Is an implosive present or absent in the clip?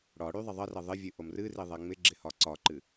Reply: absent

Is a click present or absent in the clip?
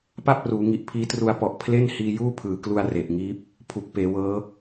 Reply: absent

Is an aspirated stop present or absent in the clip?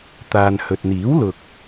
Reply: absent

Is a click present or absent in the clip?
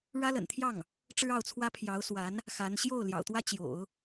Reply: absent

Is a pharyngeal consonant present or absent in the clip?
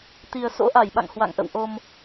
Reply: absent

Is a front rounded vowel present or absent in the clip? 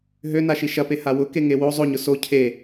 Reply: present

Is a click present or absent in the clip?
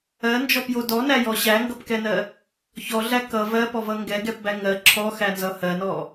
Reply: present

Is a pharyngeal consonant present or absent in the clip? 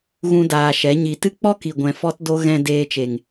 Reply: absent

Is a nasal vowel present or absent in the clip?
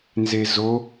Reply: absent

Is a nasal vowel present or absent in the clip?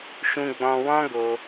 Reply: present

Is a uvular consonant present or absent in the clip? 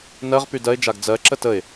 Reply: present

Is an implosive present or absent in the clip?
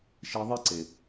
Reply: absent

